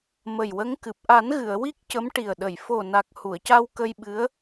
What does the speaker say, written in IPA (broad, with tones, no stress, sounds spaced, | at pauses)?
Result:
m ə˨˩ j w ə˧˥ ŋ k ɨ˨˩ p̚ ʔ a˨˩˦ n ɣ ɨ˨˩˨ ə̯ w i˦˥ k̚ c ə˧˥ m ʈ i˨˩ ə̯ ɗ ə˨˩˨ j f o˨˩ n a˨˩ k̚ h u˨˩˨ ə̯ c a˧ w k ə˧ j ɓ ɨ˧˥ ə̯